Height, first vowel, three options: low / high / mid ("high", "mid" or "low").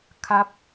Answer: low